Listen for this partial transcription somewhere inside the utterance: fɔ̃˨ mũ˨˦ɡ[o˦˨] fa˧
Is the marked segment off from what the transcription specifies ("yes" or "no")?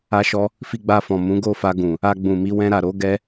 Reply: no